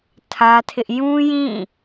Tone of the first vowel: high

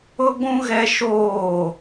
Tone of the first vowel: high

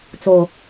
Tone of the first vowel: low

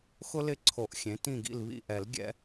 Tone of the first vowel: high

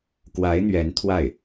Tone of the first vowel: rising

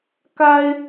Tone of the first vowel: high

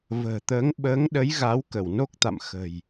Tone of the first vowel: low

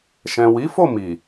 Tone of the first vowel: low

